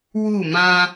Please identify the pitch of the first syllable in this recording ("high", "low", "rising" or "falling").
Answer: falling